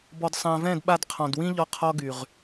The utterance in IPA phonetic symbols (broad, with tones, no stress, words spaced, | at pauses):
bɔ˨dsˤã˨vɛ̃˦˨d ɓa˧dqʰɔ̃˨dwĩ˦ʎɔ˧ qʰɔ˦ɡy˨ʁ